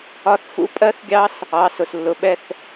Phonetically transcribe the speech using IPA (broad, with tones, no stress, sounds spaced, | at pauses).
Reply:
ɒ˦˥ θ f ṵ˦˥ pʼ ɜ˦˥ θ ɡʲ ɑ˦˥ s | ɑ˩˧˩ s ʊ˩ s lː ʊ˩ ɓ ɛ˥˧ θ